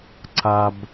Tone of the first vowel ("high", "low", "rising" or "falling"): low